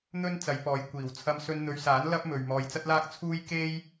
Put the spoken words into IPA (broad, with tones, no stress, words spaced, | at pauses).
n̪ɵ˥n t͡sɐ˨˧jpɔː˨˧j kʷiː˨˩w t͡sʰɐ˧msɵ˧nn̪ɵ˨˧ɥsaː˨˥n lɐ˥p̚mɵ˨ɥ mɔː˨jt͡sɐ˥t̚laː˥k̚ t͡sʰuː˥j ke˥j